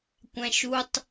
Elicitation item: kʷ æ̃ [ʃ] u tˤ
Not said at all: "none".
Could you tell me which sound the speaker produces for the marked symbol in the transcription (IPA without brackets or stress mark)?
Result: ʃ